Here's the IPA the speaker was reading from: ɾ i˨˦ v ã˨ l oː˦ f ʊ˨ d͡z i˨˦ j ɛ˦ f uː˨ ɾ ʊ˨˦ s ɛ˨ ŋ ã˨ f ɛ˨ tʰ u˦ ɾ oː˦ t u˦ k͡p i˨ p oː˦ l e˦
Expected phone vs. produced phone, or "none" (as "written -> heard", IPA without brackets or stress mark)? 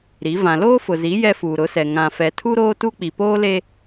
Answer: d͡z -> z